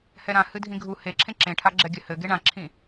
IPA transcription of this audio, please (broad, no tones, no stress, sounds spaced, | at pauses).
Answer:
h ɛ ɾ ã h ɨ dʱ ĩ ɡʱ u h e ǁʰ ẽ ǁ ẽ ʈʰ a ɡ͡ǁ ɛ ɡʲ ɘ h ɘ ɡ e ɳ ã ǁʰ ĩ